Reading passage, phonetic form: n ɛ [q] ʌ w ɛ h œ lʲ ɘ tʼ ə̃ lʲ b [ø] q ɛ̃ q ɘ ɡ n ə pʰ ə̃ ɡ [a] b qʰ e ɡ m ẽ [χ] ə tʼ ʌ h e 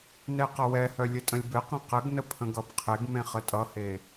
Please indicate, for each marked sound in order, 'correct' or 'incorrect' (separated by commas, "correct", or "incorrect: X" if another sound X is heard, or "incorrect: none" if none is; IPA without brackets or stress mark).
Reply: correct, incorrect: ɘ, incorrect: ʌ, correct